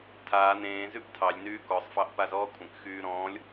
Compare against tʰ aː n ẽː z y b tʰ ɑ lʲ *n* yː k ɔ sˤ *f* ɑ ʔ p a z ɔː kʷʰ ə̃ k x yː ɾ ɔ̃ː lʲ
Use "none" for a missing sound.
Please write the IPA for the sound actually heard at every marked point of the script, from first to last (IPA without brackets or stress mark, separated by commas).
n, f